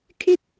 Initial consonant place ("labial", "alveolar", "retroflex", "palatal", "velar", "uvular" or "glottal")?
velar